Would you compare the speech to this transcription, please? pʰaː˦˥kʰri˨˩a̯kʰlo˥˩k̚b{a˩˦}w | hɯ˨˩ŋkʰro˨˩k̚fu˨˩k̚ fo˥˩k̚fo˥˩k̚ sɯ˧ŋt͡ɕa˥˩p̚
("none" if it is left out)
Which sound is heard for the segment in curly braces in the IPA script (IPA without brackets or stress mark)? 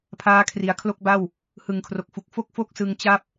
a˥˩